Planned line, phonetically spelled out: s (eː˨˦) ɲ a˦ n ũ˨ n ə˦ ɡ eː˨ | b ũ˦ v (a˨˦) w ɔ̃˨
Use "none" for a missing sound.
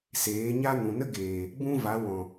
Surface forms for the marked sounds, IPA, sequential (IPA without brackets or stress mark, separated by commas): eː˨˦, a˨˦